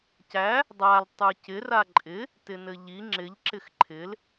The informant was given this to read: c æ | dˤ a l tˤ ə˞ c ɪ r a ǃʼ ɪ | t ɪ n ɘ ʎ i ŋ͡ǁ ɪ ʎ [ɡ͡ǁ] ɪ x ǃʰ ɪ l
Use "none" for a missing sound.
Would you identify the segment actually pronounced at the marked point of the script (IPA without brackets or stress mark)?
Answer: ǁ